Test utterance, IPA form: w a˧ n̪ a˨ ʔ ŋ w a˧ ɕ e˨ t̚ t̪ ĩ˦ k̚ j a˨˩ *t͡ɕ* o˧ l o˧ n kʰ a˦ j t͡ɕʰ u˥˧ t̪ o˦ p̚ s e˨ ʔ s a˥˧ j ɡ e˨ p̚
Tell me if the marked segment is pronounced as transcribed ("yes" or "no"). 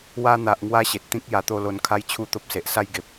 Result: no